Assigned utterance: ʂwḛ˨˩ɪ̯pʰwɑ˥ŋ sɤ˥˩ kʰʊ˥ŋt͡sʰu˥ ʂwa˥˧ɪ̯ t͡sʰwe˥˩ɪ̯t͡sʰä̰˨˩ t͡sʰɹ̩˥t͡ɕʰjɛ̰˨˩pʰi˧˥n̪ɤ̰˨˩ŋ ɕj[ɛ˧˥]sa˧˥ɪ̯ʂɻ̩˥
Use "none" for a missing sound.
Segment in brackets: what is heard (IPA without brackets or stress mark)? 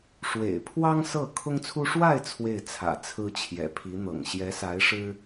ɛ˧˥